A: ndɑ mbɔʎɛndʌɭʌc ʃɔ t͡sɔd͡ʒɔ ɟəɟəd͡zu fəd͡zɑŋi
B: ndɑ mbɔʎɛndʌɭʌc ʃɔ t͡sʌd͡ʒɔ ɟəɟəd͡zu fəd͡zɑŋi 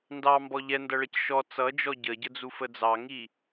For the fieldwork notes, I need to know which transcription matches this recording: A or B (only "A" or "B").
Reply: B